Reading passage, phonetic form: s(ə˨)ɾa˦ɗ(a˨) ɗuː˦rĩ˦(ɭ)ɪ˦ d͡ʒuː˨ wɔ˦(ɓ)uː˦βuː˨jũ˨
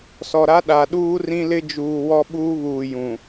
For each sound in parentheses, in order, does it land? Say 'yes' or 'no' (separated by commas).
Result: no, yes, no, yes